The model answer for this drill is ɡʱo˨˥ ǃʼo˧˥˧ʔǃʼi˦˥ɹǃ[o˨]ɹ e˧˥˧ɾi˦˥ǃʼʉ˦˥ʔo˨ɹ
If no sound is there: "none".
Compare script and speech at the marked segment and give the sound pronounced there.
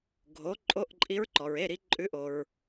ɔ˨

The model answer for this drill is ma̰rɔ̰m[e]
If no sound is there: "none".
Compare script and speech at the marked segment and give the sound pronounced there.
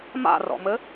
ɘ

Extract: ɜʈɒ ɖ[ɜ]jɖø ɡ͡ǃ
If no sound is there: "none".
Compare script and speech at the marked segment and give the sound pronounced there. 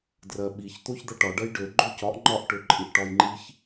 ɜ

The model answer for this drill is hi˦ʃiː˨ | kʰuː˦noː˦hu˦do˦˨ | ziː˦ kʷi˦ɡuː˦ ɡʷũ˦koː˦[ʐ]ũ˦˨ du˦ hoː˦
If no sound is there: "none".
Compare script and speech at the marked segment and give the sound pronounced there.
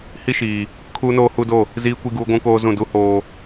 z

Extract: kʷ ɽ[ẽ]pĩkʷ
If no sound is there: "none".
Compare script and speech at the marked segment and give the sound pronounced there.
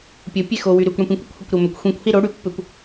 ẽ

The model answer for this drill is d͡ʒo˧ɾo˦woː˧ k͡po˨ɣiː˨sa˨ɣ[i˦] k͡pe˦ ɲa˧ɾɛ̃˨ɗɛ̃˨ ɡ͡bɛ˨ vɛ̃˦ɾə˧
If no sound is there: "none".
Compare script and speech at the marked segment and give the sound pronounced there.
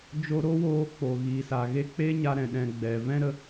e˦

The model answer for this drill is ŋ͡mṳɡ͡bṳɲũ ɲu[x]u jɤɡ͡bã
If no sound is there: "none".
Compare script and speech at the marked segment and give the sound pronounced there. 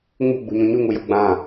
ŋ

